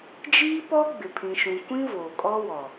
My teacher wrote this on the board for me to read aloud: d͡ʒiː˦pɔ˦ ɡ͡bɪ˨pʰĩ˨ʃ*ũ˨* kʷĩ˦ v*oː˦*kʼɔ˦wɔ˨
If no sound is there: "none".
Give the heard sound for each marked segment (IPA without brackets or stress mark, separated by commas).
ũ˨, oː˨